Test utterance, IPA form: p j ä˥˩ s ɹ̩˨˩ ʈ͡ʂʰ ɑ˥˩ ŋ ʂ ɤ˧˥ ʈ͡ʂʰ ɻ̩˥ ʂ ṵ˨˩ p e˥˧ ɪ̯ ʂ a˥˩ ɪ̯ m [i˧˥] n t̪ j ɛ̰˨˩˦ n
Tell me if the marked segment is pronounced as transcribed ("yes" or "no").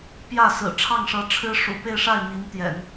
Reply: yes